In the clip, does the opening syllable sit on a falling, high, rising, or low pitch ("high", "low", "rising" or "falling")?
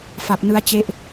low